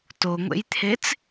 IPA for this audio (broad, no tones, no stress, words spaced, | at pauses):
toŋʷḛjt̪ʰet͡s